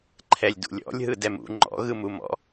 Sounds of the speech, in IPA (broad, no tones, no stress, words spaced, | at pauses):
ǃʰɛlʲdṵlʲɔ̰lʲɦɯ dɛmṵ ŋ͡ǃɔ̰ɣɯmumɔ̰